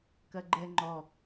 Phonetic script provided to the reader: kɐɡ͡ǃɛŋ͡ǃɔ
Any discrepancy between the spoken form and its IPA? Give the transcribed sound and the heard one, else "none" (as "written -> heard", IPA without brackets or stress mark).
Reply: none